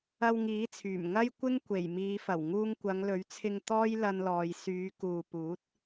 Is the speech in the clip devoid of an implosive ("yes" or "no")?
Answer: yes